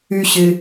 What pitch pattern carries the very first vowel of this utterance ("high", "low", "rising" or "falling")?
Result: high